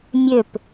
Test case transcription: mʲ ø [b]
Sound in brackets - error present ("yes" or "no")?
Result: yes